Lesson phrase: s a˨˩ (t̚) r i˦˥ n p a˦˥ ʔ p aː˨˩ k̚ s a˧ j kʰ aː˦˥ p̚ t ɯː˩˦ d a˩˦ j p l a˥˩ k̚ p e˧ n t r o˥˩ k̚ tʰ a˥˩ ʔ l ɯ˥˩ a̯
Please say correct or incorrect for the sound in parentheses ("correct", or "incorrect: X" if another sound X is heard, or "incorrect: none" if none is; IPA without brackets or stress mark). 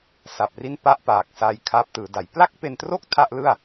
incorrect: p̚